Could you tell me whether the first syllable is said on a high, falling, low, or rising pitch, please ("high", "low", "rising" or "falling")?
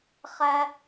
high